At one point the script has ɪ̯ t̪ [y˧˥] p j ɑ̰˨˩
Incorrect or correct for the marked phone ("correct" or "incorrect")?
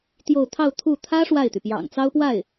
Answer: incorrect